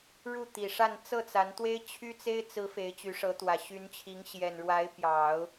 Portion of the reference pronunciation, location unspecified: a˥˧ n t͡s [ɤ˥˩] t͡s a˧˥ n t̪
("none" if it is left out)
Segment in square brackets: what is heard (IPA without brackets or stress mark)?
ɤ˥˩